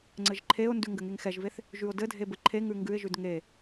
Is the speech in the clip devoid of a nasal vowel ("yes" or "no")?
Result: yes